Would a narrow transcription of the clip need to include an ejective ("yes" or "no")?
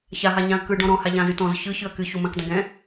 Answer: no